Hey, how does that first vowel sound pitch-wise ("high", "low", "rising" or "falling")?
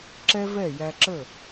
high